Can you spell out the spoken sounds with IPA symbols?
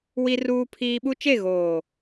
w i˦ r uː˦ pʰ iː˦ ɓ u˦ t͡ʃ e˦˨ ɣ oː˨

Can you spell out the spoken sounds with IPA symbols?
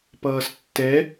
p ʌː s tː ɛ

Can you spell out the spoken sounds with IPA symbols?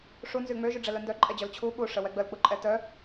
ʂ u n z y ŋ͡m ø ʒ y ɖ͡ʐ ɛ l œ n d œ ǃʼ ɛ d͡ʑ œ l t͡ɕʰ u ɓ u ʂ ə w ɛ ɡ͡b ə l k͡p u ǃʼ ɛ t œ

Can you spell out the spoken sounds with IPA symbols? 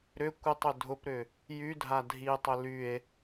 ɾ ʏ kʷ ɪ tˤ ʏ dʱ ʊ p ɾ ʏ | j y dʱ a dʱ i tˤ ʏ l y e̯

